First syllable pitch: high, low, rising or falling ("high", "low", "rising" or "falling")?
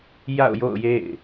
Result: falling